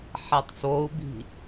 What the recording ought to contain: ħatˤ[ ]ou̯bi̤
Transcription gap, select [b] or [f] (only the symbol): f